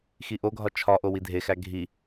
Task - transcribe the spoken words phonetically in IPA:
x i ʔ o ɡʱ ɒ t͡ʃʰ ɒ ʔ o w i dʱ e x æ ɡʱ i

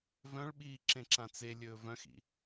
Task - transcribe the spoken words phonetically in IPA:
v œ̃ ɭ ɓ iː ǁ ẽ ǁ ã t͡s e lʲ ɵː v œ̃ x ḭ

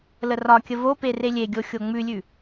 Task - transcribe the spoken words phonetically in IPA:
l ə r ɒ kʲ ə v o p e r e lʲ e ɡʲ o xʲ o ŋ͡m ʉ lʲ ʉ

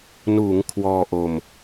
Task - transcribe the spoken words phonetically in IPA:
n uː˩˦ ŋ kʰ w ɔː˧ ʔ o˧ m

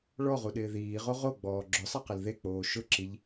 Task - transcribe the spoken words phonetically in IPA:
ɭ ɔ ʁ u ɗ ɪː ð iː ʁ o ʁ o ɡ͡b ɔː ɡ͡ǁ ʊ sˤ a q ɪ l ð e k͡p oː ʃ ʊ ǁ i ʎ

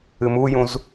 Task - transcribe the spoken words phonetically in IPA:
ɨ m u j ũ z

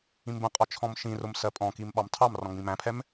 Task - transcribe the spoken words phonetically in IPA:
ĩ m b ə̃ qʼ ɒ t͡ʃʰ ɔ̃ m ʃ ĩ r ʊ m s ɜ pʼ ɔ̃ k i m ɓ ɑ m tʰ ɑ m r ɔ̃ ŋ͡m ĩ m æ̃ pʰ ɛ m

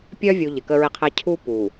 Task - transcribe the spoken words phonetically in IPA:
pʲ œː˦ vʲ u˨ ʎ ɪ˨ k ə˦ ɹ ɪ˦ qʰ ɛ˦ cʰ u˦ p u˨

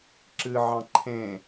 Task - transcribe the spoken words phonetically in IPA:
ǁ ɨ ʕ ɑ̃ ǃʰ ẽ

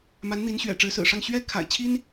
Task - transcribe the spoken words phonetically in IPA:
m a˧˥ n n̪ i˧˥ n ɕ ɥ ɛ̰˨˩ ʈ͡ʂ ɻ̩˧˥ s ɹ̩˨˩ ʂ ɑ˥˩ ŋ ɕ ɥ ɛ˥ kʰ a̰˨˩ ɪ̯ t͡ɕʰ i˥ n

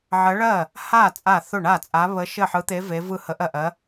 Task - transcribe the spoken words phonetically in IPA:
ʕ ɜ˧˥ ɭ ɜ˥˩ | h a˥˩ t͡sʼ a˥˩ θ ʊ˥˩ ɳ a˥˩ t͡sʼ a˧˥ β ə˧˥ ʃ ɘ˥˩ ħ ɯ˧˥ t̪ e˧˥ v e˧˥ v ɯ˥˩ h ə˧˥ ʔ ɜ˥˩ ʔ ɜ˧˥

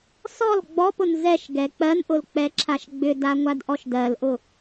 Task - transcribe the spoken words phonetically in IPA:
s ɔ l ɡ͡b ɔ p ʊ n z ɛ ʃ ɡ ɛ k͡p ɜ n ʔ ʊ l k͡p ɛ ǁʰ a ʃ ɡ͡b ʏ d a ŋʷ a d ʔ ɔ ʃ d ɜ l ʔ ʊ

